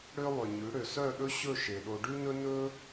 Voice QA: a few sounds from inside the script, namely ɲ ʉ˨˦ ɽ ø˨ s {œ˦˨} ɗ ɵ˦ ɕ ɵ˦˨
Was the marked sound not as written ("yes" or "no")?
no